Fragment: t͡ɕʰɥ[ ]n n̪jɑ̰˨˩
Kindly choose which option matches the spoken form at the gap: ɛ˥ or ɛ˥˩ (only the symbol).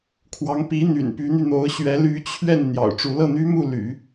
ɛ˥˩